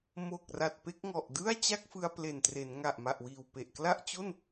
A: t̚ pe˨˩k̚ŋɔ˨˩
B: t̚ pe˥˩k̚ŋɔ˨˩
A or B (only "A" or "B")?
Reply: B